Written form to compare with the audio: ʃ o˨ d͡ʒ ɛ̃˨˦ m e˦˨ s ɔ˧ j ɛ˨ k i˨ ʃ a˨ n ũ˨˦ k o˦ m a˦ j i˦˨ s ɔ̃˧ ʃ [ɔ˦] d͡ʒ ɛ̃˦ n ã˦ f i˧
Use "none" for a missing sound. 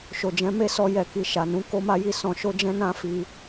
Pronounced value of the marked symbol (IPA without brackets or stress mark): o˦